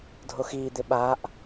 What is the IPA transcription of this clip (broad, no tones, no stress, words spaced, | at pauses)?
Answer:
dʱoxiːd̪ɪ ɓaʔ